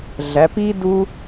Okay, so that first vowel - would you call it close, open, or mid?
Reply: open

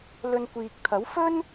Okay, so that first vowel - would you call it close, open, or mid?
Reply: mid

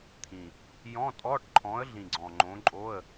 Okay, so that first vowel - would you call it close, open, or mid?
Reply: close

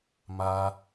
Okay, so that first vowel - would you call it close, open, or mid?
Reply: open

